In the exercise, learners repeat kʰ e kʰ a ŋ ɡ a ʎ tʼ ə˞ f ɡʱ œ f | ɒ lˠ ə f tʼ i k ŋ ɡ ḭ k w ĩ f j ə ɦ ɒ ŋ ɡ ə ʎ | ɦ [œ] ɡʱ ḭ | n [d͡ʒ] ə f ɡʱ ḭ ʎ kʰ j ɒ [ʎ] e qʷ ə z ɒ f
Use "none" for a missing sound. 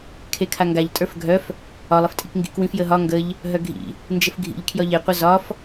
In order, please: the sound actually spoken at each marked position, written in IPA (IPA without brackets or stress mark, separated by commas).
œ, d͡ʒ, ʎ